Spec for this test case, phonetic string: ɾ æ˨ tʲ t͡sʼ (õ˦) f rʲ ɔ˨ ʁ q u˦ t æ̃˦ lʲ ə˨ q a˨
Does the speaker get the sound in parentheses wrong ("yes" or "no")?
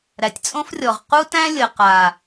no